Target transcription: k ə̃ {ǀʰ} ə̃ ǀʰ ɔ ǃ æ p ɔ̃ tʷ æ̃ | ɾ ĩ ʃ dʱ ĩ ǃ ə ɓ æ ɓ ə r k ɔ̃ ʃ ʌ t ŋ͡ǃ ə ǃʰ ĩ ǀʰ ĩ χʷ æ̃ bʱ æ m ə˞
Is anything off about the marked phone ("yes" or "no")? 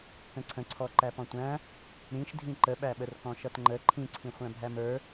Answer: no